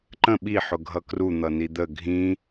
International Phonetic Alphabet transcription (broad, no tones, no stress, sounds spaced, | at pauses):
ǃ ə̃ ɓ i ħ ʊ ɡʱ ʌ k r u n̪ ʌ n i d̪ ə ɡʱ ĩ